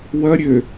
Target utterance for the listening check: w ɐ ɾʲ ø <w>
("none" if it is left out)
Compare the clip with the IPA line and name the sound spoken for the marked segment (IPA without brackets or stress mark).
none